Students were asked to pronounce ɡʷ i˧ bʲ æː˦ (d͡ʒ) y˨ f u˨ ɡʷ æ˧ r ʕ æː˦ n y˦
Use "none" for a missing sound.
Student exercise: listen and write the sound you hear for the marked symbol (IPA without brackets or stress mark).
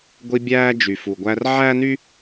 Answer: d͡ʒ